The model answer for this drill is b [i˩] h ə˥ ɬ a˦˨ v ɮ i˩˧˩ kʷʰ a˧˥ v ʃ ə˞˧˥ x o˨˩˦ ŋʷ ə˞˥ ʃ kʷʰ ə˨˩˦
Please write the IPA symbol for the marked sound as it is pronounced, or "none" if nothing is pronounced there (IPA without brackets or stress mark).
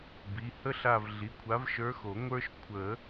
i˩˧˩